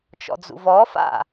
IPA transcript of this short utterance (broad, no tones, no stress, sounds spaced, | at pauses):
t͡ʃ ɔ̰ d͡z ṵ v ɔ f a̰